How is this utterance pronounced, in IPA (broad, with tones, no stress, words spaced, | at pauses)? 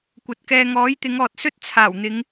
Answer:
kʷɐ˨t̚kɛː˧ ŋɔː˨˥jt̪ɪ˨˧ŋɔː˨t̚sɵ˥t̚ t͡sʰaː˨˩wn̪ɪ˨˧ŋ